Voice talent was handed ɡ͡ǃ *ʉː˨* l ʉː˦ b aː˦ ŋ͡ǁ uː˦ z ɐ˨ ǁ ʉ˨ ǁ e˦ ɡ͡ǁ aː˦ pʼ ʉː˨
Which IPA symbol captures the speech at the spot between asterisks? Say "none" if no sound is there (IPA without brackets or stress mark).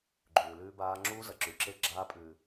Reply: ʉː˨